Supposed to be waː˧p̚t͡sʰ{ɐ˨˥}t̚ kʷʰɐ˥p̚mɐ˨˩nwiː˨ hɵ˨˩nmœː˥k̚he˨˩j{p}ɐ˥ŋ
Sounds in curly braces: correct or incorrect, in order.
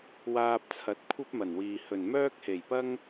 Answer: correct, correct

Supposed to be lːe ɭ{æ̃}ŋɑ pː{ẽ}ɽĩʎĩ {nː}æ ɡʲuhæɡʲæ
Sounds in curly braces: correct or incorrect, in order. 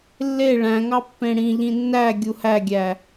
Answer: correct, correct, correct

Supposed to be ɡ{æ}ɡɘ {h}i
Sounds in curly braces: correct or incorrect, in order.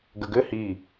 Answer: incorrect, correct

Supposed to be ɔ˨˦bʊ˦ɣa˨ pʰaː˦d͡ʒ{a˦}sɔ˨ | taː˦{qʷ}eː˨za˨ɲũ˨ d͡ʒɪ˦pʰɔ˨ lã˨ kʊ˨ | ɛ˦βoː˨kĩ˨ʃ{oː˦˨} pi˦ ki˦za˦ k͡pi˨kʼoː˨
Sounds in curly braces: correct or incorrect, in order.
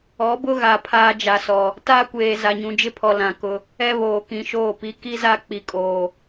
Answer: incorrect, incorrect, correct

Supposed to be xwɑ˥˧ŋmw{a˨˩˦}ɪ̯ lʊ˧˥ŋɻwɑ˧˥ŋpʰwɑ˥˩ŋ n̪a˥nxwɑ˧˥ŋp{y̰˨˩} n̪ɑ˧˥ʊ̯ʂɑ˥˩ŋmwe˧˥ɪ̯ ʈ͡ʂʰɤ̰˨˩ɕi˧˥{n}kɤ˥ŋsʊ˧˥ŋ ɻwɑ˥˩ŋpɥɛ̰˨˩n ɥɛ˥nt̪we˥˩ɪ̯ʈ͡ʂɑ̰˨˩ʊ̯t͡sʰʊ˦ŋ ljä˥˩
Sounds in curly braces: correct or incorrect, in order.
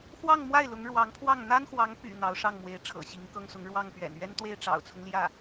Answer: incorrect, correct, incorrect

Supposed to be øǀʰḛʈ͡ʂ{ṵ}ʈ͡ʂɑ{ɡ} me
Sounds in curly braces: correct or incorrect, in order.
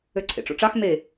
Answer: incorrect, incorrect

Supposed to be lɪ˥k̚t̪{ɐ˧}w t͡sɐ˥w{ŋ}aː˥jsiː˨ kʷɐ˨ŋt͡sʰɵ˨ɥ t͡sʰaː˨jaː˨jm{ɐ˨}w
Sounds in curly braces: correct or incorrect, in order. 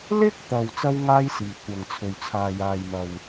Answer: incorrect, correct, correct

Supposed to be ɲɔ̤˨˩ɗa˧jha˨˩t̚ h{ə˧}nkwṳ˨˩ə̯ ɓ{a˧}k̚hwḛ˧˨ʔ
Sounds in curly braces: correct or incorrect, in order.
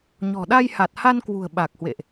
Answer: incorrect, incorrect

